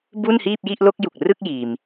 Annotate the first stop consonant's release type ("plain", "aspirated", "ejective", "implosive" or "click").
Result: plain